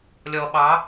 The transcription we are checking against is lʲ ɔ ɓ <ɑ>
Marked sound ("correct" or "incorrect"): correct